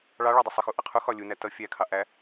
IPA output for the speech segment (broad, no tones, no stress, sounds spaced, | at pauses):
ɭ ɑ ɭ ɒ dˤ ɪ sˤ ə x u ʔ ʌ qʰ u x ɒ lʲ u n æ t ʌ fʲ æ kʰ ɑ ʔ æ